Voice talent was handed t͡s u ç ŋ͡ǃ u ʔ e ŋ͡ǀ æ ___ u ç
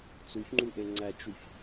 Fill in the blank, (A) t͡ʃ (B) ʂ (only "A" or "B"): A